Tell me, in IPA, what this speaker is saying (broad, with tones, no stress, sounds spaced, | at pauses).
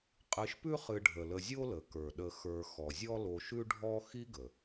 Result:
qʼ ɨ˨ ʃ p ʉ˦ χ ɨ˨ ɖʱ ə˩ l ə˨ zʲ o˦ l ə˩ k ə˞˩ ɗ ə˨ x ə˞˨ x ɔ˩ zʲ ɔ˦ l o˨ ʃ ʉ˦ ɖʱ ɔ˦ x i˥ ɡ ə˩